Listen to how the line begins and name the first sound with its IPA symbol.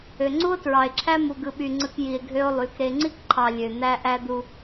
ø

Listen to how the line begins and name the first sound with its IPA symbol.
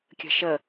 kʲ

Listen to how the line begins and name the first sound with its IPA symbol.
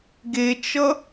ɡ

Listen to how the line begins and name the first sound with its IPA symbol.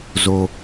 z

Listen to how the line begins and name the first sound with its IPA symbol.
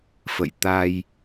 f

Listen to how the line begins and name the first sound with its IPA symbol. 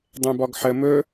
dˤ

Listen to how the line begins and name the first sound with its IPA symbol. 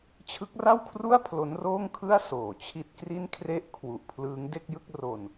t͡ɕʰ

